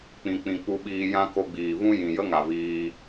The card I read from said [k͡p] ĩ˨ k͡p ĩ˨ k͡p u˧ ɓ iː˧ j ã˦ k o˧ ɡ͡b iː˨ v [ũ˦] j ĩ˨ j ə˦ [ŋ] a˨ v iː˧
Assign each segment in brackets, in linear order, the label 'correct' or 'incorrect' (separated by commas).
correct, correct, correct